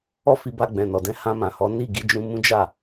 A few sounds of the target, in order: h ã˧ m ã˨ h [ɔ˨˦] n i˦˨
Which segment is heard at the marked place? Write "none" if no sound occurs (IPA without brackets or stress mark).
ɔ˨˦